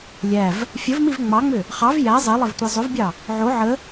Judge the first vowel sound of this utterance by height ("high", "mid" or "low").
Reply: low